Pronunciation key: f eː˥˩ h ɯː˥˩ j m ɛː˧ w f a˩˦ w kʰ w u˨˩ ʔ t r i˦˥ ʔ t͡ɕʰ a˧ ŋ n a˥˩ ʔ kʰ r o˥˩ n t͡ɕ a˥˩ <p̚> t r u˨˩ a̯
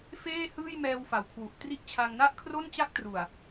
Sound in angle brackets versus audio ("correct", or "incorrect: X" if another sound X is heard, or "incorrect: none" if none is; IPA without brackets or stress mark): incorrect: k̚